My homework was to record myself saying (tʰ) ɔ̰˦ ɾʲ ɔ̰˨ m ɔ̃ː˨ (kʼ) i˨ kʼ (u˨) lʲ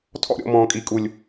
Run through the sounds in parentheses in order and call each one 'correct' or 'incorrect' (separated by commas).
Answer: correct, correct, correct